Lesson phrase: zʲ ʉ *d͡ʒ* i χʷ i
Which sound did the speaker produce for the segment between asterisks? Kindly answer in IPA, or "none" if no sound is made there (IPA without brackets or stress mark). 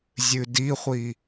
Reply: d